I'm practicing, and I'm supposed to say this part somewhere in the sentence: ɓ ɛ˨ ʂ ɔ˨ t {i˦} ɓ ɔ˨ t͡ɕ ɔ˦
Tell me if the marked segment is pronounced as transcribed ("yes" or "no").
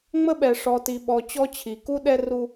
no